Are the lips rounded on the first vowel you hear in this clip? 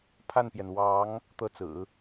no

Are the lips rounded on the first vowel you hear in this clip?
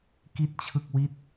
no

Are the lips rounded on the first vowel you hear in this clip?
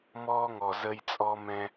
yes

